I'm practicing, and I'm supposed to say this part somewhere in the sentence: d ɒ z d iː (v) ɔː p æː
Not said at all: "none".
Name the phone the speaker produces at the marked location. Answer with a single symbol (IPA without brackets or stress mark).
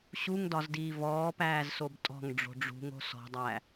v